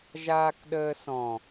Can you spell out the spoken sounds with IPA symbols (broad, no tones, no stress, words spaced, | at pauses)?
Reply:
ʒaːkɗəːsɔ̃